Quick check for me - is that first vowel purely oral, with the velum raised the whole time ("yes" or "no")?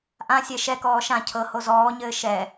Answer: no